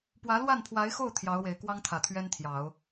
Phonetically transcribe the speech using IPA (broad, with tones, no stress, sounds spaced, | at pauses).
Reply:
p w ä˧˥ l w a˥˩ n pʰ w a˧˥ ɪ̯ x o˥˩ ʊ̯ t̪ʰ j ɑ˧˥ ʊ̯ w e˨˩ ɪ̯ k w ɑ˥ ŋ t̪ʰ ä˨˩ t̪ʰ ɥ ɛ˥ n t̪ʰ j ɑ˨˩˦ ʊ̯